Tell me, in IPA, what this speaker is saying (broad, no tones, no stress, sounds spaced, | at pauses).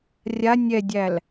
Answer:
rʲ a nʲ ɛ dʲ æ l